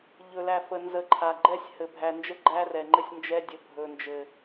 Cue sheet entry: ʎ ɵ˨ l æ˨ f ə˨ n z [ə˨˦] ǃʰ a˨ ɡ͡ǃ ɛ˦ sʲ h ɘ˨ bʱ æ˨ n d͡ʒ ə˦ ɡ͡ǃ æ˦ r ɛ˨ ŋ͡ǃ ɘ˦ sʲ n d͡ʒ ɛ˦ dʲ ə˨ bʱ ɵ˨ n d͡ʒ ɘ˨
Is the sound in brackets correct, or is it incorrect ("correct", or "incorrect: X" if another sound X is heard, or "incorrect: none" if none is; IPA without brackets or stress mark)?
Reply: correct